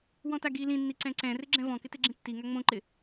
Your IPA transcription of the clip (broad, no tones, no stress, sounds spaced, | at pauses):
w ɔ̃ t a ɡ i l ĩ nː i ǀ ɛ̃ ǀ ɛ̃ r ɪ ɡ͡ǁ ɛ̃ v ɔ̃ k ɪ t e ɡ͡ǁ ĩ tː i ŋ a ŋ͡m õ ǃ ɪ